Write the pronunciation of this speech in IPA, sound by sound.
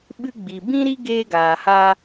ɓ ɨ˧ ɡ͡b i˨ b ĩ˦ ɾ i˦ ɡ eː˧ ɡ aː˨ h a˧

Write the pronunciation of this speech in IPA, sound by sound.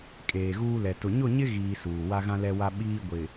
kʼ eː˨ ɣ uː˦ l ɛ˨ t ʊ˨ ɲ ʊ˦˨ ɲ ɪ˦ ɣ iː˦ s uː˨ w a˦ ɣ ã˦ l ɛ˦ w a˦ ɓ iː˦ ɡʷ ɪ˨

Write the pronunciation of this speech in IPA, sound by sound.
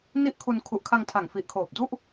n i˥˩ ʔ kʰ u˧ n kʰ u˨˩ ʔ kʰ a˧ ŋ tʰ a˨˩ ŋ f i˨˩ ʔ kʰ oː˨˩ p̚ d u˥˩ ʔ

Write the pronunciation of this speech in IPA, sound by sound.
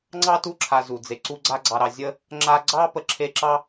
ŋ͡ǀ ɑ˥ t u˦ ǁʰ a˨ z u˩ d͡z e˩ ǀ u˦ ɡ͡ǀ a˦ ɡ͡ǀ ɑ˨ ɾ ɑ˨ zʲ ə˦ | ŋ͡ǁ a˦ ɡ͡ǀ ɑ˥ p ə˨ ǁʰ e˦ ǁ ɑ˥

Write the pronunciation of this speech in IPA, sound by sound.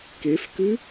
k e f k ʉ

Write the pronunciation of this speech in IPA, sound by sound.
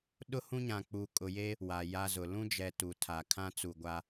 ɗ ʊ˦ h ũ˦ ɲ ã˨ k͡p u˨ kʼ ʊ˨ j e˦ | w a˨ j a˦ z ʊ˨ l ũ˦ d͡ʒ ɛ˨ t u˨ tʰ a˨ kʰ ã˦ t͡s u˨ ɡʷ a˦

